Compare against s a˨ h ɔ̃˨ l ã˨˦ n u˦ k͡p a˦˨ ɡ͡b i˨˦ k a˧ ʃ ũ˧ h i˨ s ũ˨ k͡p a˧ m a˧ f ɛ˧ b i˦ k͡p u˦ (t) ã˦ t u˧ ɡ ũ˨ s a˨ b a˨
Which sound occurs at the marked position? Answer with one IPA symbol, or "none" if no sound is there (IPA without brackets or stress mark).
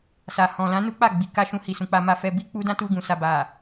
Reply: d